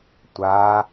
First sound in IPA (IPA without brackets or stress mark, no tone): tʷ